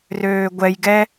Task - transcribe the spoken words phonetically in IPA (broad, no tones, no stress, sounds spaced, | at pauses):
r øː ɡʷ ɛ j ɡ ɛ